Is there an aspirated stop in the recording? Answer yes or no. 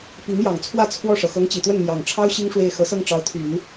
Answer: yes